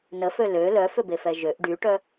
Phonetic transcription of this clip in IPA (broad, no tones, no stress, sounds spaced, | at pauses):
n ə f ø l ø l œ f ʏ b e f ɛ ʒ ø ʔ ɖ y ʈ œ